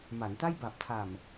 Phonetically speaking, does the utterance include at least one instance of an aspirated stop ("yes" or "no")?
yes